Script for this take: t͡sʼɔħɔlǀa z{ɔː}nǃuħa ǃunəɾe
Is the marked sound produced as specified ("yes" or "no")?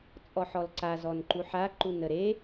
no